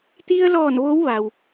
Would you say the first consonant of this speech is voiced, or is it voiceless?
voiceless